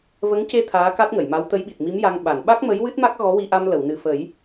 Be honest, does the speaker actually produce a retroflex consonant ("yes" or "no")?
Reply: no